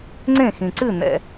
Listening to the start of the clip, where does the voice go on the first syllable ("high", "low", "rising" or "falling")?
falling